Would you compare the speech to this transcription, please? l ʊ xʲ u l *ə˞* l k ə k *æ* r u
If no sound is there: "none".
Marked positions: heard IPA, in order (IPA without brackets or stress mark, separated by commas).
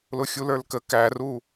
ə˞, æ